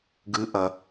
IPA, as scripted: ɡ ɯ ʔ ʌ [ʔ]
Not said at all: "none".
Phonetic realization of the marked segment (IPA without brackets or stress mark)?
none